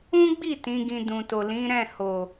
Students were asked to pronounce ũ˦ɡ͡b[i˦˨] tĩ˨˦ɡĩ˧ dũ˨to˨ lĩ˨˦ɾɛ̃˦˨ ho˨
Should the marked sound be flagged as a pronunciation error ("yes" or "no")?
no